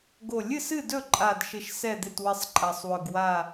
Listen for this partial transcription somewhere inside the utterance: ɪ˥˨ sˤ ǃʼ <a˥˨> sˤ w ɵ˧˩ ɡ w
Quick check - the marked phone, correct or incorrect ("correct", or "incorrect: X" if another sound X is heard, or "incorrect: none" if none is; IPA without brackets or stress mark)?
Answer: incorrect: a˧˩